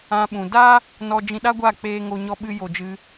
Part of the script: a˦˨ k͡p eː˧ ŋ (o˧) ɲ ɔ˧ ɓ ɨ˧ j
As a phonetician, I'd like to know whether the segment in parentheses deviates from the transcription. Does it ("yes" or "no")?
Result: no